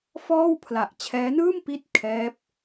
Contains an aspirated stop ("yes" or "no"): yes